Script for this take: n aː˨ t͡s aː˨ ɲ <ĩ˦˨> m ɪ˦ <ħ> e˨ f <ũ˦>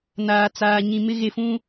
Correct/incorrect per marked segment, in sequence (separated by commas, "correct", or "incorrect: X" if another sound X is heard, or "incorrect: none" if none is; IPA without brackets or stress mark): incorrect: ĩ˨, incorrect: ɣ, correct